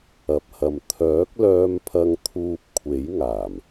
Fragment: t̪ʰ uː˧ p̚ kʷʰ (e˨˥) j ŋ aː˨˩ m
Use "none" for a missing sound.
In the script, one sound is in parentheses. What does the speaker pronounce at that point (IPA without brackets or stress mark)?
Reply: e˨˥